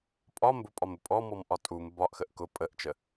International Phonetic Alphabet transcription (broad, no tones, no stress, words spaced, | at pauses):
pʼɒ mbʊpʼɒmʊ pʼɔmɔmʔɒ tʼum bɒʔxəʔ kʊ pʼəʔt͡ʃə